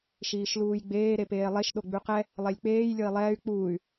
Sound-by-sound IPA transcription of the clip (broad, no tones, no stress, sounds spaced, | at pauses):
ʃ iː ʃ l uː j ɡ͡b eː ɾ e p eː lˠ e ʃ ɗ o ɡ͡b ʉ q ɛ | lˠ e lʲ k͡p eː j lʲ ɤ i̯ lˠ ɛː y̯ k͡p uː y̯